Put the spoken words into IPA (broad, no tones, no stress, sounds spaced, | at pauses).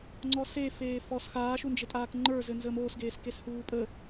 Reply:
ŋ͡ǀ ɔ s e f eː f ɔ s x aː ʃ u n d͡ʒ ɘ tʼ aː k ŋ͡ǃ ə˞ z ɘ n z əː m oː s ɡ eː s k e s h uː pʼ ə